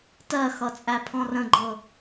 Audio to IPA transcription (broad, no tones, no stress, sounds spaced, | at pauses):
t ɜ x ʌ t͡sʼ æ pʰ ɔ̃ r ə̃ ɡ͡ǃ ɤ